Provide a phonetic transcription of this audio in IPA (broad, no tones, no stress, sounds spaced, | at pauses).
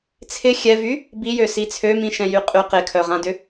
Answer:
t͡sʰ ɪ xʲ ɛ v y | b i j ø s i t͡sʰ ø m ĩ ʃ ɛ̃ j y qʼ y q ɪ kʰ œ ʁ ã d ʏ